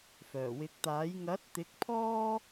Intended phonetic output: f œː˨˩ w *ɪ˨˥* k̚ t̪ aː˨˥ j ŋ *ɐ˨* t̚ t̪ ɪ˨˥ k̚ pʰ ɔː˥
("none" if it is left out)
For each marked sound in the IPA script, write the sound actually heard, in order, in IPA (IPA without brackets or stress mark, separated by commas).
ɪ˨˥, ɐ˨˥